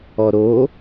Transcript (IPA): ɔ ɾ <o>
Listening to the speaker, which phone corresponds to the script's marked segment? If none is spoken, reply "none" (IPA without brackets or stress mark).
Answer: o